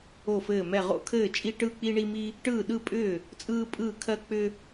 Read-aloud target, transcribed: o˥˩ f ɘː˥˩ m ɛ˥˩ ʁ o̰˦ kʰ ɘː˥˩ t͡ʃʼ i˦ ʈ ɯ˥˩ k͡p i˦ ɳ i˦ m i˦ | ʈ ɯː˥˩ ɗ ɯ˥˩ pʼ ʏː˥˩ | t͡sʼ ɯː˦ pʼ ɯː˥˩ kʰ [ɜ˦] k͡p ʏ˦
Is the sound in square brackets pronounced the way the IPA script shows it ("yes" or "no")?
yes